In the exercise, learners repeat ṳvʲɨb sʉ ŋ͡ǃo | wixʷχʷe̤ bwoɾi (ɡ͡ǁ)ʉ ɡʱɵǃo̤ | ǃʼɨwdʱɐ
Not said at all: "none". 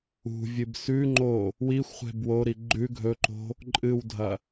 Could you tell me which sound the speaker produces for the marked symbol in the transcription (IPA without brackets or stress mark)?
ɡ͡ǃ